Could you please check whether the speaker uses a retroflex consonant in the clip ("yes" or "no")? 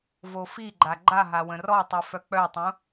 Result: no